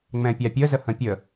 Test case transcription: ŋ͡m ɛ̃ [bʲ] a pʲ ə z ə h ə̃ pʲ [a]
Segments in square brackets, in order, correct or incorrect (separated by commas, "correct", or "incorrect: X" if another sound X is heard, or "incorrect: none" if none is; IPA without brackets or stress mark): incorrect: pʲ, incorrect: ə